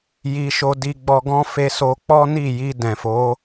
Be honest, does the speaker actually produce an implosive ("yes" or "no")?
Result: no